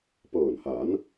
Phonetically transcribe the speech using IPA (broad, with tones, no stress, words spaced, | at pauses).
pɤː˨˩nhaː˩˦n